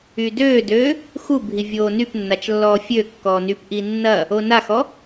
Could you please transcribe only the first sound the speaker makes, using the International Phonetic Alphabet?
y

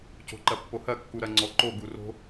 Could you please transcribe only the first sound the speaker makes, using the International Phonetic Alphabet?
c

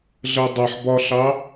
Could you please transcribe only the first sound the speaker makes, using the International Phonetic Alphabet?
ɮ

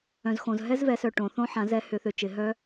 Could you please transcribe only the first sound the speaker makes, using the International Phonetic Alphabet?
œ̃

